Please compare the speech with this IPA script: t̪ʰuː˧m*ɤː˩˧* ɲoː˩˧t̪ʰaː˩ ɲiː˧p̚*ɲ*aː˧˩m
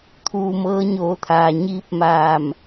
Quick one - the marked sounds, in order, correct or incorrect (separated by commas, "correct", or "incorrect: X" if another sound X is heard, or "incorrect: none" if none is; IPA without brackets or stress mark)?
incorrect: ɤː˧˥, incorrect: m